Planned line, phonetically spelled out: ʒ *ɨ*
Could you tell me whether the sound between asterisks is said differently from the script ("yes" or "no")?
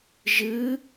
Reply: no